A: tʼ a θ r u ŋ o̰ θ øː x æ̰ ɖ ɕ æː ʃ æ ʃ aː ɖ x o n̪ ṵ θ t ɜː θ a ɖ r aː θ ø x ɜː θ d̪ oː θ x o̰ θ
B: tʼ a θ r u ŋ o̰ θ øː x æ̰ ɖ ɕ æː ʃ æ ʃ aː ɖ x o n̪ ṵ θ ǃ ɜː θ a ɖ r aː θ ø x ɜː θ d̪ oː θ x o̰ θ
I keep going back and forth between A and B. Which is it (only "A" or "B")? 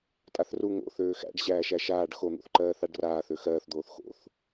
B